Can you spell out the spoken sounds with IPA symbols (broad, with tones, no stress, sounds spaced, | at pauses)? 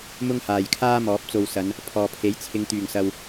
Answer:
m ʊ˥ ŋ h aː˨ j kʰ aː˥ m ɔː˨˥ p̚ t͡s o˧ w s ɐ˨˧ n | pʰ ɔː˨ pʰ e˨˥ j t͡sʰ ɪ˨˧ ŋ t̪ yː˨˩ ŋ s ɐ˨ w